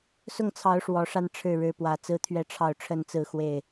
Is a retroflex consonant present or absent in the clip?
present